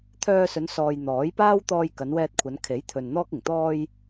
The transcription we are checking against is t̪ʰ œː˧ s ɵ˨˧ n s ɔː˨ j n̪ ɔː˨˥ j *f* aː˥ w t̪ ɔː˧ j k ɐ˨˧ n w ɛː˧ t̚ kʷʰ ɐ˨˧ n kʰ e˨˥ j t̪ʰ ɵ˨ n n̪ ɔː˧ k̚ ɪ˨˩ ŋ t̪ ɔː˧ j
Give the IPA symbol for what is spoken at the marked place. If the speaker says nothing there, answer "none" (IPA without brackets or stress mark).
p